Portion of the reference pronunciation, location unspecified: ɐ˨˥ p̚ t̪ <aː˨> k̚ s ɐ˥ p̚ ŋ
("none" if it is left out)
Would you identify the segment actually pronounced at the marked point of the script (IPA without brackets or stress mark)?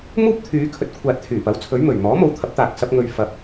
aː˨